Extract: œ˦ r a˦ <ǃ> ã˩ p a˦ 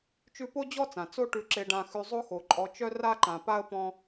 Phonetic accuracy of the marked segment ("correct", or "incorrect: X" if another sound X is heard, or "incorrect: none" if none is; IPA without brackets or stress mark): correct